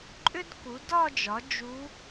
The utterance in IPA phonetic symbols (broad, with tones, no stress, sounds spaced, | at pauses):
ǃʼ ʏ˥ d k u˩˥ d ɒ˥˧ d͡ʒ ɒ˩˥ d͡ʒ u˧˥